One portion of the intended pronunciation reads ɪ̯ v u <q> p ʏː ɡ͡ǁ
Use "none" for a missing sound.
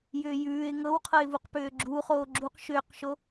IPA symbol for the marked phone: q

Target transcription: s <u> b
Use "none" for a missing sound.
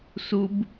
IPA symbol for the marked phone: u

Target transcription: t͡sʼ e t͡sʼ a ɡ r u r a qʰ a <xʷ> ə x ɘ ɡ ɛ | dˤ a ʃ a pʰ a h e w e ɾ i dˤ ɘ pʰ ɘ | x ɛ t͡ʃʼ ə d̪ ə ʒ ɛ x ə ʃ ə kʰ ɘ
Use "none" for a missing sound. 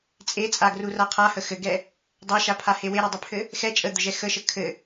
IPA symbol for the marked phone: h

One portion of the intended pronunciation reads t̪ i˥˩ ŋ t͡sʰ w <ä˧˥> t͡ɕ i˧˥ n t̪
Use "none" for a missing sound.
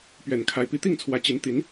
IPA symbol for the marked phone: ä˧˥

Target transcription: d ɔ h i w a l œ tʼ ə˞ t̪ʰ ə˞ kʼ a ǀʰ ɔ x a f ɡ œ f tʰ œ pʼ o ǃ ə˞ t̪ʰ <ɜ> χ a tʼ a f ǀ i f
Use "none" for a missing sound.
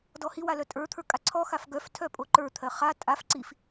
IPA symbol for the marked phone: ɜ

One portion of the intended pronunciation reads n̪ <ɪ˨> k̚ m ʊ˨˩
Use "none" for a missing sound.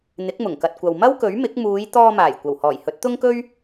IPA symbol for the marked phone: ɪ˨˥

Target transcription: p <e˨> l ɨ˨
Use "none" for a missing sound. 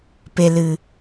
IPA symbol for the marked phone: e˨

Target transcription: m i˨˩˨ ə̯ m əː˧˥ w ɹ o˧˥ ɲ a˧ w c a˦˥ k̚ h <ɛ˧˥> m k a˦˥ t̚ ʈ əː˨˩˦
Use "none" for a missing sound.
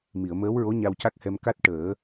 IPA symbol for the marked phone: ɛ˧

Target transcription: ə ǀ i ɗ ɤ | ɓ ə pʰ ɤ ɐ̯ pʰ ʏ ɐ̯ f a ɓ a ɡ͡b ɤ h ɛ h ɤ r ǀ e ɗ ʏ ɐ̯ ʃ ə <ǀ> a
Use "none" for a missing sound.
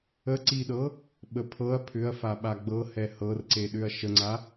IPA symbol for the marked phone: ŋ͡ǀ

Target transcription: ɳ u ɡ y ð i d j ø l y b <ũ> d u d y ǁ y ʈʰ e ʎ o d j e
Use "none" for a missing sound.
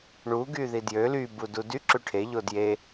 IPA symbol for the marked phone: u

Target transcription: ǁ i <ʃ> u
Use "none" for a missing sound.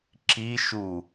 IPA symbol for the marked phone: ʃ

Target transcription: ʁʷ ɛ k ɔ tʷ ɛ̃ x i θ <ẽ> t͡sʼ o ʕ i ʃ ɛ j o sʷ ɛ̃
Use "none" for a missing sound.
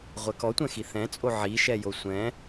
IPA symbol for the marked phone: ɛ̃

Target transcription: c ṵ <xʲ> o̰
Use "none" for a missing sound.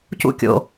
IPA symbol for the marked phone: kʲ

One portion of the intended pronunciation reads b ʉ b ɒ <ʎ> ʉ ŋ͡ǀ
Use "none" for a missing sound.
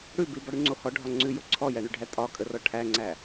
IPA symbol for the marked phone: ɽ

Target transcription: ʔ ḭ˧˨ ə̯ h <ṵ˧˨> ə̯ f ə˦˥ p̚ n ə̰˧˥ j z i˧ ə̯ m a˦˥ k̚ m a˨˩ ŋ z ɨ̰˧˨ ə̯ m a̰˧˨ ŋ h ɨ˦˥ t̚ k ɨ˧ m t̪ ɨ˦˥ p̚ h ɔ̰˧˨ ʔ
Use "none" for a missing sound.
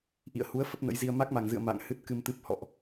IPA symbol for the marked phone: u˨˦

